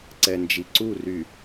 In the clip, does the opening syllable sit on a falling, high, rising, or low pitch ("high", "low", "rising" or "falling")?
low